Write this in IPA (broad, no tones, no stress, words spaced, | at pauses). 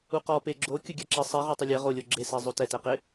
uqɔ peɡ͡ǁo kʲʊɡʲaǁɪ sˤɛ ʁɔtˤʊlʲɛ ʁolʲo ɡ͡ǁese zˤotɛtɛqɪ